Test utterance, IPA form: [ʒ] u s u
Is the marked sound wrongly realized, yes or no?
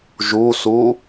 no